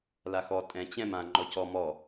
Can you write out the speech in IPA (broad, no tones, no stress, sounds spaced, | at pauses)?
l a x ɔ tʼ ɛ̃ t͡ɕ ɛ̃ m ã ŋ͡ǃ ɔ c ɔ m ɔ